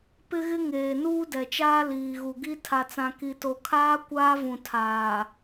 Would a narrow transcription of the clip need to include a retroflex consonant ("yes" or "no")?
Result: no